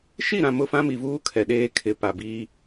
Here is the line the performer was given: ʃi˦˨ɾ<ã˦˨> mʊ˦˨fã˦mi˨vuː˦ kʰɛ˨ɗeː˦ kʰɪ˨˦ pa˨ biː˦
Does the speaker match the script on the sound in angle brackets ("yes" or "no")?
no